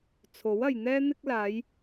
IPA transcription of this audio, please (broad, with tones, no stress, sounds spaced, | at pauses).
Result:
t͡sʰ o˨˥ w ɐ˨ j n̪ ɛː˥ n̪ ɪ˥ k̚ l aː˨˧ j